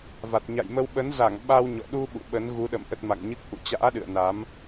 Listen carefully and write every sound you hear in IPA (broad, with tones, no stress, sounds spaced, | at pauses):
v a˨˩ t̚ ɲ a̰˧˨ j m ə˧ w ɓ ə˨˦ n z a˧˩ ŋ ɓ a˧ w ɲ ɔ̰˧˨ ɗ u˧ ɓ ṵ˧˨ ɓ ə˨˦ n ɣ u˨˦ ɗ ə̰˧˨ m ʔ ə˦˥ t̚ m a̰˧˨ ŋ ɲ ɨ˦˥ k̚ ʔ ṵ˧˨ t͡ɕ a̰ː˧˥ ɗ ɨ̰˧˨ ə̯ n a˨˦ m